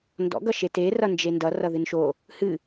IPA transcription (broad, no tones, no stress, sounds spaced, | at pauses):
n d ɔ̰ ɡ ʌ ʃ e t e r ʌ n d͡ʒ e n d ʌ r ʌ ð ɨ n ʃ o | h ɨ